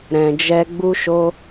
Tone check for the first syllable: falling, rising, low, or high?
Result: low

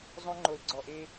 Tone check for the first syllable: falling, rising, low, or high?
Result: high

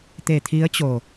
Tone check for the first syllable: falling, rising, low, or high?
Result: low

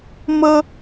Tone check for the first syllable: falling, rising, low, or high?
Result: high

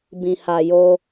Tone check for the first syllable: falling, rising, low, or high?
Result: low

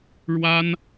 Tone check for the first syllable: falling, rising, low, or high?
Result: high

